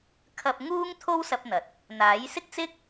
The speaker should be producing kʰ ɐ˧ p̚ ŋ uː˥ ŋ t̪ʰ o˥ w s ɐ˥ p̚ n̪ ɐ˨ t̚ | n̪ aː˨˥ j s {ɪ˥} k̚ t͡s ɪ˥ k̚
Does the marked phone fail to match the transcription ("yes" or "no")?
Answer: no